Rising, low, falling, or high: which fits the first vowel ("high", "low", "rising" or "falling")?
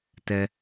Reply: low